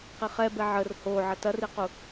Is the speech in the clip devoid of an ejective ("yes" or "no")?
yes